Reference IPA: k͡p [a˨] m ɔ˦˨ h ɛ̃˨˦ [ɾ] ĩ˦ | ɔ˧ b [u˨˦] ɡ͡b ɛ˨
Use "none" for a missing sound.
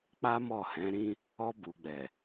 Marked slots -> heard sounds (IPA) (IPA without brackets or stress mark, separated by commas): a˦, ɾ, u˨